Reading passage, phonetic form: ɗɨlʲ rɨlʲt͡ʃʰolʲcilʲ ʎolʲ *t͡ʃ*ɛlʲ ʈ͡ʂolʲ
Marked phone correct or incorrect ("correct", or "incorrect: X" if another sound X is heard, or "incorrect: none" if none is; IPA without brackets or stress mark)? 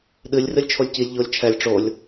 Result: incorrect: t͡ʃʰ